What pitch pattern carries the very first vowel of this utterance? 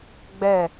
falling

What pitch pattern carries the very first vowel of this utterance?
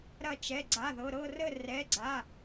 falling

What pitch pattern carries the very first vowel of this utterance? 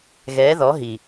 rising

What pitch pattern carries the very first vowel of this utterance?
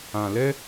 low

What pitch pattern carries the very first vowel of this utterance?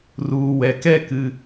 low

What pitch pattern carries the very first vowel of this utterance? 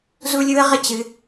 high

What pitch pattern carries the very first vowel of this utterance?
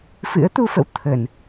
rising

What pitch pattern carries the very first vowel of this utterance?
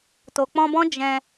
low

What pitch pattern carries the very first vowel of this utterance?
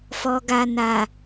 low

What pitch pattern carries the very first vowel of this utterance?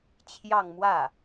falling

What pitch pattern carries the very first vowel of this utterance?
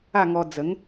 falling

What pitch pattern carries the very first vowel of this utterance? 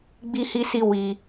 high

